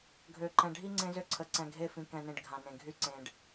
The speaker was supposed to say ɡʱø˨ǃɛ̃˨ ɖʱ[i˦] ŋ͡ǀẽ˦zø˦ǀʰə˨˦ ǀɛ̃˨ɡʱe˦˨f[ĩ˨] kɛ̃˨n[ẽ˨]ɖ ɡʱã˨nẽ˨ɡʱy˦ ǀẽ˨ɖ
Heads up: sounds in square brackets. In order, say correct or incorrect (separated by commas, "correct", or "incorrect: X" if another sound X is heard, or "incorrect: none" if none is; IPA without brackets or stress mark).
correct, correct, correct